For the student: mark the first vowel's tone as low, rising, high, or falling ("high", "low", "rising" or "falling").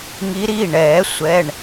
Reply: rising